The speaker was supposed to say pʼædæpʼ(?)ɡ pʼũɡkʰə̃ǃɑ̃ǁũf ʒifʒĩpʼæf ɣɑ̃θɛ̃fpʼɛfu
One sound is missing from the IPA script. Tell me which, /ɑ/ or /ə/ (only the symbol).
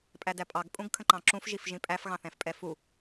ɑ